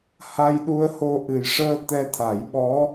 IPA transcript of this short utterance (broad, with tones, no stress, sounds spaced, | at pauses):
h a˧ j ɗ u˧ ə̯ h o˧ ʔ ɨ˨˩ j ʂ əː˧ t̪ ɛ˧ t̪ʰ a˨˩˦ j ɓ ɔ˧˥